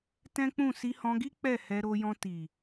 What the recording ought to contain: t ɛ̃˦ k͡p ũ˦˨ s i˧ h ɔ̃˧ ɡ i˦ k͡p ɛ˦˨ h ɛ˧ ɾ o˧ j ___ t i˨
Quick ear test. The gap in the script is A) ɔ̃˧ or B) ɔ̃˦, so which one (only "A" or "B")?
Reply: A